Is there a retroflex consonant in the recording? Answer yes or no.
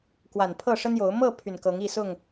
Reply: yes